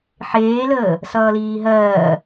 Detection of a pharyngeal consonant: present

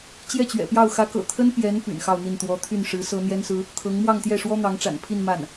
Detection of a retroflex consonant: present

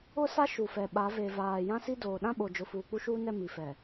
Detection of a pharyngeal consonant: absent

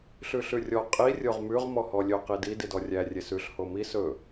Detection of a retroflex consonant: absent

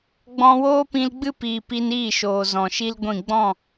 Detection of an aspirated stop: absent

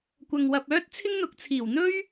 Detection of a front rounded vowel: present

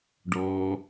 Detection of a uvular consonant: absent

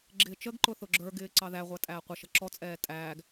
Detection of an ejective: present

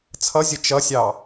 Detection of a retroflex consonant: absent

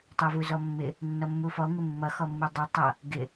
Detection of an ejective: absent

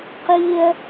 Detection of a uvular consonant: present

